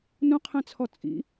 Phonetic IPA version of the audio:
n ũ qʰ ɛ̃ t͡sʰ ɔ t͡sʼ ḭ

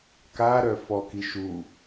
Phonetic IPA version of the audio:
k a ɾ œ f ɔ k i ʃ u

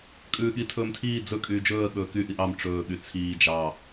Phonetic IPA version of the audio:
kʼ ʉː ɠ i tʰ ɵː m tʰ iː d͡z ɵ kʼ yː d͡ʒ ɵː ə̯ ɠ ɵː k y ʔ i ʔ ɑ m ʈ͡ʂ ɵː ɠ y t͡sʰ iː d͡ʒ ɑ

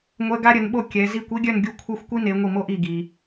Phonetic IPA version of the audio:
ŋʷ ɛ˧˥˧ ɡ a˥ ɾʲ ə˨˦ n ɓ o˥˧ kʲ ɛ˨˦ z i˥˧ kʷ i˥ ɡʲ œ˥˧ n ɡʲ u˥˩ kʷʰ e˥˧ xʷ kʷ i˥ n e˨˦ ŋʷ i˥˩ m o˥ ʔ i˥˩ ɡ i˨

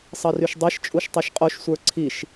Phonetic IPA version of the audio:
sˤ ʌ r y ʃ dˤ e ʃ t͡ʃʼ u ʃ tˤ a ʃ qʼ o ʃ sʷ ə˞ ǀʰ i ʃ

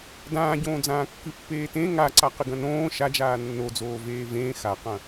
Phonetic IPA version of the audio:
d ãː ɟ õː d͡z ãː kː ɨ pː eː t ẽ ŋ a ǀ a q ɨ ɡ ɐ̃ n õː ʃ a d͡ʒ aː nː o d͡z oː v eː v ẽː x a q ɐ̃

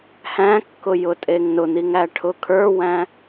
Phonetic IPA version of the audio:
h æ̃ kː ʊ j ʊ tʼ e ŋ n ʊ n̪ i ŋ æ ʈʰ ʊ kʰ ə˞ w æ̃

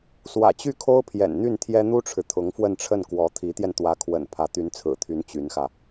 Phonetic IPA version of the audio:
s w ä̰˨˩ t͡ɕ y˥˩ kʰ o˥ ʊ̯ pʰ j ɛ̰˨˩ n n̪ y˥˩ n t̪ʰ j ɛ˥ n̪ u˥ ʈ͡ʂʰ ɻ̩˨ t̪ʰ ʊ˧˥ ŋ f w ə˥˧ n ʈ͡ʂʰ ə˥˩ n k w ɔ˧˥ t̪ʰ i˧˥ t̪ j ɛ˧ n t̪ w ä˧˥ kʰ w ə̰˨˩ n pʰ ä˧˥ t̪ y˧˥ n t͡sʰ ɹ̩˨˩ t̪ʰ y˧˥ n t͡ɕ y˧˥ n x ä˧

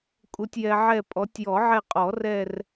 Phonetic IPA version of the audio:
kʼ u˨ tʲ j ɛ˨ ʕ ɛ˦˨ pʼ ɔ˨˦ tʲ j ɔ˨˩˦ ʕ ɛ˦˨ qʼ ɔ˨˩˦ r ɛ˦˨ r

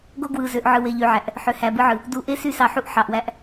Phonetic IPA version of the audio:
ɡ o˦ ɡ w ɯ˨ z ø˨ ʔ ʕ ɯ˨ w e˨ ʎ y˨ ʕ æ˨ ʔ | ħ ø˨ h æ˨ b ɯ˦ ʕ ɯ˨ | d u˨˦ ʔ e˦ s y˦ s ɑ˨ ħ u˦ ʔ ħ ɑ˨ ʔ w æ˦ ʔ

